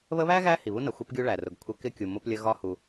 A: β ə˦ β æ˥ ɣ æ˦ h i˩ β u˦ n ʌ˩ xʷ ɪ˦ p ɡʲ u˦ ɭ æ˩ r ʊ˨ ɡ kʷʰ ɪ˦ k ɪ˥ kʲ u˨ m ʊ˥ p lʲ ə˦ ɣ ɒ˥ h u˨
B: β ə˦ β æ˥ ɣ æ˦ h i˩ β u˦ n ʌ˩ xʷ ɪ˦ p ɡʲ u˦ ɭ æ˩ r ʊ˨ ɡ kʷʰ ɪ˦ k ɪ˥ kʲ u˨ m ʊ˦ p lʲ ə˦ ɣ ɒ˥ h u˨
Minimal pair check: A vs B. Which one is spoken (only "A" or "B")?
B